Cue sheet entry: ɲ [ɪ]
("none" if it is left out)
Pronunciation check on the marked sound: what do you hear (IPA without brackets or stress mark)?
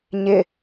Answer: ɪ